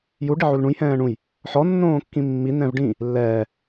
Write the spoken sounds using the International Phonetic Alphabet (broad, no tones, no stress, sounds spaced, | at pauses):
j u ɖ i ʕ u l ɳ ũ j h ɛ̃ː ɳ ũ j | ħ ɔ nː õː kː ĩ mː i n ɛ̃ v ɖ ĩ | lː ɛː